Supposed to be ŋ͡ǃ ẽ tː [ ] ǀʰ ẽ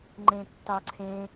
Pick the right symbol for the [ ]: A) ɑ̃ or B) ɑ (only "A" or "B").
B